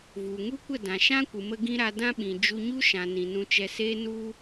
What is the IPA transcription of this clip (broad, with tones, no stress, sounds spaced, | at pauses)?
v u˨ ŋ u˦ kʷ ə˦˨ d ã˨ ʃ ã˦ kʷ ɨ˨ m ə˧ ɡ ĩ˦ ɾ a˧ d ã˦ ɓ ĩ˨ d͡ʒ u˧ ɲ u˦ ʃ ã˨ n ĩ˨ n ũ˧ t͡ʃ ɛ˧ s eː˦ n u˦